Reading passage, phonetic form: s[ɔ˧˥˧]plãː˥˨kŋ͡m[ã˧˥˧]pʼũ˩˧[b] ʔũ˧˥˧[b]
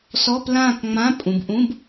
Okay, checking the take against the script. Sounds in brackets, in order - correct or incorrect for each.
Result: correct, correct, correct, correct

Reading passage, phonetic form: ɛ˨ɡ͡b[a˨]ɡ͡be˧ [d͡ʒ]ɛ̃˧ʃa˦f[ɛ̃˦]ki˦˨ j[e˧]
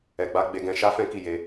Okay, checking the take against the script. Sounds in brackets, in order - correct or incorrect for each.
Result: incorrect, incorrect, correct, correct

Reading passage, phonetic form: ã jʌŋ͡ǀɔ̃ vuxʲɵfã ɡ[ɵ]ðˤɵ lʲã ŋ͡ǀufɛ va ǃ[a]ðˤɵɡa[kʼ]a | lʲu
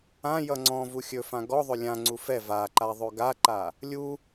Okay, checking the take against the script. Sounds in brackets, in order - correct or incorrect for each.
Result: incorrect, correct, incorrect

